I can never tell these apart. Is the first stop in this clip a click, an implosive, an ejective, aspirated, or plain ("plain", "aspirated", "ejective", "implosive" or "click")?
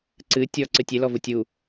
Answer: click